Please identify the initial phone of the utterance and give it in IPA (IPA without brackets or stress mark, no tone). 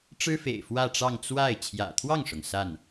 ʈ͡ʂ